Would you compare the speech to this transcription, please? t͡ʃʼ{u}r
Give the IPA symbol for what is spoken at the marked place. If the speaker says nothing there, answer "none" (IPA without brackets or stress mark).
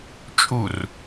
u